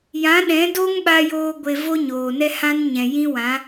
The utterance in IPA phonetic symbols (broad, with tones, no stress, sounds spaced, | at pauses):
j ã˨˦ ɗ ɛ̃˨˦ d o˦ ŋ ɓ a˧ j oː˧ ɡʷ e˧ v o˦ ɲ oː˨ n ɛ˦ h ã˦ n ɲ ɛ̃˨ j ĩ˦ w ã˨˦